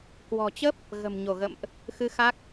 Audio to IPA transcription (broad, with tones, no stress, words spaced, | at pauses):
kwɔ̤˨˩t͡ɕə˦˥p̚ | ɣə̤˨˩mɲo˧˩ɣə̰˧˨mʔ | xɨ˧ xa˦˥k̚